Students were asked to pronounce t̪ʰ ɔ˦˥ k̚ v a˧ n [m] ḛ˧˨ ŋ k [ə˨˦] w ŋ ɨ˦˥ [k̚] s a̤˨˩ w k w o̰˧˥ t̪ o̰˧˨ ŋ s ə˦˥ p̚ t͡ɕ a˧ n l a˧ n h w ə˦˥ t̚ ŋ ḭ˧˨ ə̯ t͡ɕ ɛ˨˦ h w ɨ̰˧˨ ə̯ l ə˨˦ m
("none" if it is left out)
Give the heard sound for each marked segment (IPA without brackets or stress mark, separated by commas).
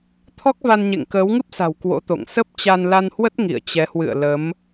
ɲ, əː˨˦, p̚